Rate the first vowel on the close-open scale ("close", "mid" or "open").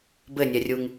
mid